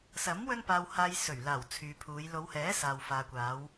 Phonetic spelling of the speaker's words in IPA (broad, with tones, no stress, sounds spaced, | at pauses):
s ɐ˨˥ m w ɵ˥ n p aː˧ w h aː˧ j s ɵ˨˩ ɥ l aː˨˩ w t͡sʰ yː˨ pʰ uː˨˧ j l o˨˧ w h ɛː˨˥ s aː˨ w f aː˨ kʷ aː˨˧ w